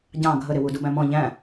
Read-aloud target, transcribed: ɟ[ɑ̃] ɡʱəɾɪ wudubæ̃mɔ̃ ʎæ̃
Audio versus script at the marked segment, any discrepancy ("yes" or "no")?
no